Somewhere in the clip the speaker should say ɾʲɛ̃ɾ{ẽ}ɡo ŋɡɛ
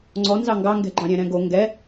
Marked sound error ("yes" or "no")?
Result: yes